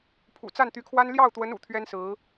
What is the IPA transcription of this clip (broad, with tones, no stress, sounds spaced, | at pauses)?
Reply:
pʰ ṵ˨˩ t͡s a˥˩ n t̪ y˧˥ kʰ w a˥ n l j ɑ˥˩ ʊ̯ t̪ w ə˧˥ n ṵ˨˩ t̪ʰ ɥ ɛ˥ n s ɹ̩˧˥